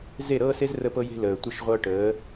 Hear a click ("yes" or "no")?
no